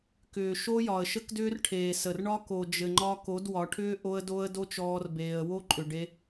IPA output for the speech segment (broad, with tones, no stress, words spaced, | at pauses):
kʏː˨ ʃo˦jɒ˨ə̯ʃə˦kdʏː˦r ʈʰeː˨sə˨r ɳɒ˦ ko˨d͡ʒɘ˨ŋ͡ǃɒ˧ ko˨˦dwɒ˨˦ʈʰʏː˦ ʔo˧ə̯do˧ə̯ do˦t͡ʃɔː˧rbeː˨ə̯ wo˦ǃʼʏ˨ ɖe˧